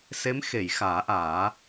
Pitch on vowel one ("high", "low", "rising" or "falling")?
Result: rising